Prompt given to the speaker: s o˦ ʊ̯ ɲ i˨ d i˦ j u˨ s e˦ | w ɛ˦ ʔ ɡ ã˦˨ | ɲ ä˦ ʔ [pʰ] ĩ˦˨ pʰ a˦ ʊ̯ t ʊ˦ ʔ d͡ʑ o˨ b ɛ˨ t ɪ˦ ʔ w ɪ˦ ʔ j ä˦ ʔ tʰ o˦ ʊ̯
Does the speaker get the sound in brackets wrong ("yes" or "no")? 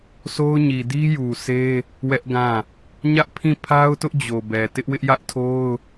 no